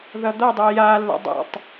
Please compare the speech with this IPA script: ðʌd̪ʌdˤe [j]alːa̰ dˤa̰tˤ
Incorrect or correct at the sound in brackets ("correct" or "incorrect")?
correct